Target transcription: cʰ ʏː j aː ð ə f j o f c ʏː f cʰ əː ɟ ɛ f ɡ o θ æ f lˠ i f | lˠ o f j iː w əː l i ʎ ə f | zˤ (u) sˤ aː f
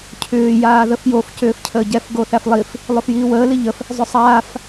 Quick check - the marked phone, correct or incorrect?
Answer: incorrect: ʏ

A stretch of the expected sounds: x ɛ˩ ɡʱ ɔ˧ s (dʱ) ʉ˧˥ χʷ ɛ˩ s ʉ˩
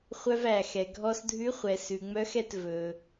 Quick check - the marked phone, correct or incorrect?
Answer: correct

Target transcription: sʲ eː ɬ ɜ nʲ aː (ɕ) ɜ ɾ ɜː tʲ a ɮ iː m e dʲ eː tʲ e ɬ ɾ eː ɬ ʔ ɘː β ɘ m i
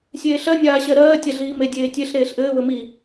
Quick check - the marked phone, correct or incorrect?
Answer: correct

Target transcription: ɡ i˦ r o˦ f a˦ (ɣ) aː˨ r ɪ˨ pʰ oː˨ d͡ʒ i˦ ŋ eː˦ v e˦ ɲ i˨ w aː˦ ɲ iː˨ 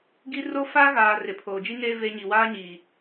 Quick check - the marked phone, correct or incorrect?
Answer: correct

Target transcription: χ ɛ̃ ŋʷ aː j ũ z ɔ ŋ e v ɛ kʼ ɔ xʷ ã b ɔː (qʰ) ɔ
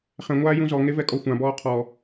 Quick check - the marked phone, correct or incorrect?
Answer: correct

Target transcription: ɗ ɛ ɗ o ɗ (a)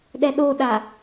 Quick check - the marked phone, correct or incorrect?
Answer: correct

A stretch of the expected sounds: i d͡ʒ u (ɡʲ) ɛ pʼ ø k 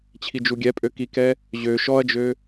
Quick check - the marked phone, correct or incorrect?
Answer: correct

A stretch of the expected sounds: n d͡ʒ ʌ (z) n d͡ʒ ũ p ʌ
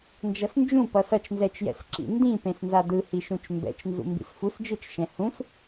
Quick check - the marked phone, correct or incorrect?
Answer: incorrect: s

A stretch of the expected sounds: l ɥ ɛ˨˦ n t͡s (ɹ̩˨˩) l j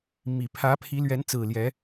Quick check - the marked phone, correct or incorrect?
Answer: correct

